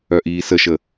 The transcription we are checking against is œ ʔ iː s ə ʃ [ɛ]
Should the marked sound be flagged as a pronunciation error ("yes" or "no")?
yes